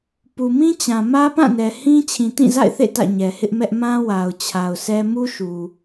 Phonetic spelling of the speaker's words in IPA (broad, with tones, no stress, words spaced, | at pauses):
pu˨mĩ˦t͡ɕã˨ mä˦pã˦˨nɛ˨ hĩ˦ t͡ɕʰĩ˨tĩ˦˨za̰˦˨ɪ̯θḛ˦˨ tä̰˦˨ɲɛ˨hɪ˦ʔmɛ˦ʔ mã˦ wa˨ʊ̯ t͡ɕʰa˨ʊ̯sɛ˦ mu˦ʃu˨